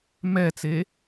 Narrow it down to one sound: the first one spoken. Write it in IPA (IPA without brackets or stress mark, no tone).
m